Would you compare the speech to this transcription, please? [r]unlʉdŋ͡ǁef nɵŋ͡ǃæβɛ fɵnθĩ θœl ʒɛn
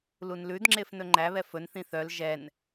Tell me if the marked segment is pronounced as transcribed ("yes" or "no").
no